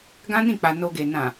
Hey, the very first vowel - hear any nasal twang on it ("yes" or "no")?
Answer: yes